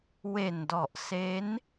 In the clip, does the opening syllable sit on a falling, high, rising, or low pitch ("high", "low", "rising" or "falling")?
low